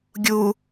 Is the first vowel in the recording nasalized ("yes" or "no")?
no